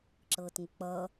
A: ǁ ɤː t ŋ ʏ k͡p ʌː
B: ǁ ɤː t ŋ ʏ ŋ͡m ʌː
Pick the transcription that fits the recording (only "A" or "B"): A